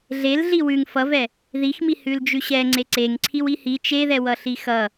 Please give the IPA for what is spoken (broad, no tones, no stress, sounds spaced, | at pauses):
ɮ e l ɮ i w ʉ ŋ f ʌ v ɛ | ð i x m i h ʉ l d͡ʒ ʉ ɕ ɛ ŋ͡ǀ e ǀ e ŋ ǀʰ i w i h i t͡ʃ e ð ɛ w ʌ ɬ i x ʌ